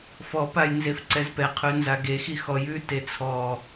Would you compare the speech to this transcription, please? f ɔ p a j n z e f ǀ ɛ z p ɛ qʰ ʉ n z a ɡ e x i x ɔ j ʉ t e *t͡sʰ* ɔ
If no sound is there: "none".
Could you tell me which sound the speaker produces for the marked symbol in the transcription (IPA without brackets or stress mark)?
t͡sʰ